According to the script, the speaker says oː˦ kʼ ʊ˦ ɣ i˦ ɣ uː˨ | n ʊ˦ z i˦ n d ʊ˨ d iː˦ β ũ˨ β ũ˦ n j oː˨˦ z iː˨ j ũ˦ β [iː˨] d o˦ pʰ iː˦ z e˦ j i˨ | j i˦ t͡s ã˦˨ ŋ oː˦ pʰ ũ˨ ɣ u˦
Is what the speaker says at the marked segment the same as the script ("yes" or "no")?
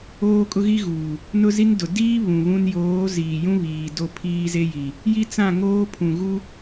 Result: yes